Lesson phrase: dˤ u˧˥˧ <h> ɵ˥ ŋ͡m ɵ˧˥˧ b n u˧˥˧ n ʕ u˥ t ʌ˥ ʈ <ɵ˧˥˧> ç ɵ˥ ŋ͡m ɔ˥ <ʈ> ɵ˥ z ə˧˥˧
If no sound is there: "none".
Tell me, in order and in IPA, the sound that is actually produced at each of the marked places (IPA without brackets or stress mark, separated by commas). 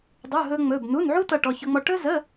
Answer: ɦ, ɔ˧˥˧, ʈ